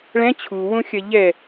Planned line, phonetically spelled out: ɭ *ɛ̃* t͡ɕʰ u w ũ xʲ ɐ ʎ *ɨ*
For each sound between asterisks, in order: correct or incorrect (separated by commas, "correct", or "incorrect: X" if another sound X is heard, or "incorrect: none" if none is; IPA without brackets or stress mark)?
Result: correct, incorrect: ɛ